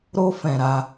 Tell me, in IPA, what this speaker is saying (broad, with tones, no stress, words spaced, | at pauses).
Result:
ɾo˧fɛ̃˨ ɾa˧